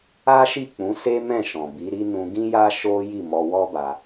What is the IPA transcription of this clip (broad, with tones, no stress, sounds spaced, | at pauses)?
a˦ ʃ i˦˨ k͡p ũ˨˦ s e˦ m ɛ̃˦˨ ʃ ɔ̃˨ b i˨˦ ɾ i˦ n ũ˧ ɡ ĩ˦ j a˦ ʃ o˦ j i˦˨ m ɔ˧ w ɔ˦ b a˧